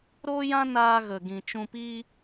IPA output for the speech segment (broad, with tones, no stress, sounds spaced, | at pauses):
ɾ oː˦ j ã˦ n aː˧ ɣ ə˨ ɡ ĩ˨ t͡ʃ ũ˧ p i˦